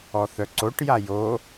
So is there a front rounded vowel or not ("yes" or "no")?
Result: yes